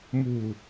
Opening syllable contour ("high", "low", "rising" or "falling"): low